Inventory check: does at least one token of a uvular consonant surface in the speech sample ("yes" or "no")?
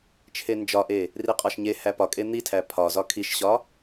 yes